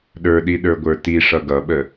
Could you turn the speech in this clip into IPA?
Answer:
ɗ ə˞ ɗ i ɗ ə˞ ɡʷ ə˞ t i ʂ ʌ ɡ ʌ ɓ ə

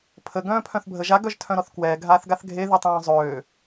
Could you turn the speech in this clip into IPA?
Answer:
pʰ ə ɡ œ̃ː pʰ œ̃ θ bʱ ə ʒ a ɡ œ ʒ tʰ œ̃ ɾ ɔ θ k w ɛː ɡʱ aː θ ɡ a θ ɡʱ e ð y tˤ œ̃ː zˤ øː

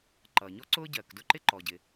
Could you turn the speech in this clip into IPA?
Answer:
ǃ ʌː˩ ɲ ɔ˥ ǀ ʊː˥ ɟ ɜː˩ k d ʊ˥ ǃ ɪ˥ ǃ ɔ˩ ɟ ɪ˩

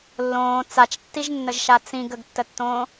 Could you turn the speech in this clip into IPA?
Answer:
lː õː t͡s a t͡ʃ tː i ʒ nː ə ʒ ʃ a t͡s ĩ ɡ ə ɡ tː ə tː õː

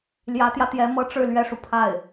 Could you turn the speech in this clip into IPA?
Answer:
l j ä˧˥ t̪ j ä˧ t̪ j ɛ˧˥ m ɤ˥ ʈ͡ʂ ɻ̩˥˩ l ɥ ɛ˥ ʂ u˨ pʰ a˥˩ ɪ̯

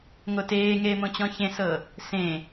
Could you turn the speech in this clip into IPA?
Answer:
ŋ o t eː ŋ eː m õ t͡ɕ ɔ̃ ç ẽ s ɤ | s ẽ

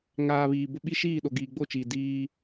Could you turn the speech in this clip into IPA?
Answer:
ŋ aː˨ β iː˨ b ʊ˦ ɓ i˦ ʃ iː˦˨ ɗ o˨ ɡ iː˨ ɡ͡b o˦˨ t͡ʃ iː˨ d iː˦

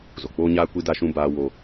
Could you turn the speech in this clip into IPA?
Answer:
z o˨ k͡p oː˦ ɲ aː˦ kʷ i˦ d a˦ ʃ ũ˦ b aː˦ w o˦

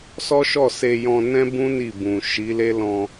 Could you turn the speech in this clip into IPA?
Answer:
s ɔ˦ ʃ ɔ˦˨ s e˧ j ɔ̃˧ n ɛ̃˦ b ũ˦ n i˦˨ b ũ˨ ʃ i˨˦ l e˦ l ɔ̃˧

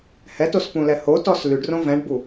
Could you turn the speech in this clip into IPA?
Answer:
h ɛ t o s p ũ l ɛ h o t ɔ s l y ɖ r õ v ɛ̃ ɖ b u

